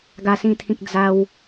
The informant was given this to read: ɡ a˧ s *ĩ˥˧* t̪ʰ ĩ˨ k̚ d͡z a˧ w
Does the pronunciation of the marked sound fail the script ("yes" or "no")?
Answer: yes